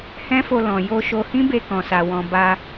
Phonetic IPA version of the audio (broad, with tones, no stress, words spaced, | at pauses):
hɛ̃˦fo˧ lɔ̃˨ jo˧ʃo˧ hĩ˦be˧kɔ̃˨sa˨ wɔ̃˨ ba˧